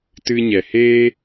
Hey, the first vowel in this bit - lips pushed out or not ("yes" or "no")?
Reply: no